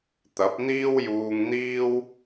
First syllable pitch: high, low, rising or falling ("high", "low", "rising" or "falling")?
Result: rising